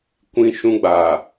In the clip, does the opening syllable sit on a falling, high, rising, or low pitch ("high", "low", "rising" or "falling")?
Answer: falling